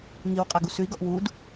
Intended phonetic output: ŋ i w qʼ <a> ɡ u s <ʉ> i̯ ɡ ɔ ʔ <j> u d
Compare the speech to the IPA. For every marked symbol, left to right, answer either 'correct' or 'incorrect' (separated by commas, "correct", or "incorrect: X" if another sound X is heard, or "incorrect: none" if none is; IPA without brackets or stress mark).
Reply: correct, correct, incorrect: w